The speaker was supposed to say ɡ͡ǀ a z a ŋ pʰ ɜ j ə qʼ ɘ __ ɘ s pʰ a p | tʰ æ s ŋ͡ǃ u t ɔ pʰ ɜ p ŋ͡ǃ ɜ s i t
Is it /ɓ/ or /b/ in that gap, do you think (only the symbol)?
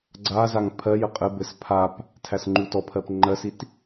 b